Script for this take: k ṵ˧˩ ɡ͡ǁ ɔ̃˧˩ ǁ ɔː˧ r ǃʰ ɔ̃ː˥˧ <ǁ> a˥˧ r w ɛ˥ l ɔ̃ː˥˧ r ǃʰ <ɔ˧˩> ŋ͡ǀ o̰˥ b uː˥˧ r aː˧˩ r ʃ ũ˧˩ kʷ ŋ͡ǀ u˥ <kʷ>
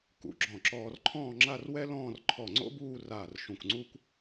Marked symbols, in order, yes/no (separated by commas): no, yes, yes